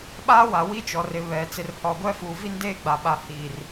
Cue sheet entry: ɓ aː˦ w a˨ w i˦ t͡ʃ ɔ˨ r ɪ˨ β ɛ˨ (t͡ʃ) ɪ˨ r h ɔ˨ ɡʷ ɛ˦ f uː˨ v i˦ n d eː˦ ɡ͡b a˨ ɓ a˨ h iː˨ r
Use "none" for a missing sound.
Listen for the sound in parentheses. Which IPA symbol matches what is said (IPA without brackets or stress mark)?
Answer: t͡s